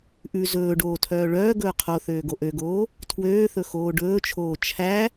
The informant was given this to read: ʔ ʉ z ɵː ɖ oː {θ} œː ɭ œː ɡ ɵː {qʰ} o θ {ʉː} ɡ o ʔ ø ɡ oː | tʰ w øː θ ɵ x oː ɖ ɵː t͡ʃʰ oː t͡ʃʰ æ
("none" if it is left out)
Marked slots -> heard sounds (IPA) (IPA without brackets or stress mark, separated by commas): tʰ, qʰ, øː